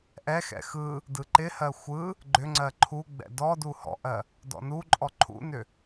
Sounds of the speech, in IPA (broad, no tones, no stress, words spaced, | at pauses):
ʔɛxɛ̰ xɯ | dɯǃɪhɜ xʷɯ | ɡ͡ǃʏŋ͡ǀɜ ǃʰuɡ͡bɛ̰ dɔ duhɔ̰ʔɜ | dɔ̰nuǃʼɔ ǃʰṵnʏ